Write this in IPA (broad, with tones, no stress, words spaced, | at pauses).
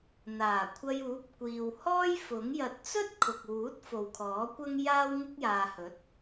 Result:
n̪aː˨˩ kʷʰɐ˧juː˨˥p̚ kʷiː˨whɔː˥j fʊ˨˥ŋ jɐ˨t̚t͡sɵ˥t̚ kʰʊ˨k̚wuː˨˥t̚ fo˨wkʰɔː˨˥kʷɐ˥ŋ jaː˥w ŋɪ˥k̚jaː˨hɵ˨˥t̚